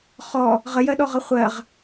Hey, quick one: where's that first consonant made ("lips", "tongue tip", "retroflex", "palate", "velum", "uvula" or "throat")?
uvula